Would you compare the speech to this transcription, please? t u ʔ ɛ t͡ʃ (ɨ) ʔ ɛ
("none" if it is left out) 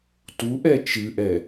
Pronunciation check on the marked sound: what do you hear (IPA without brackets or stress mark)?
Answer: ɨ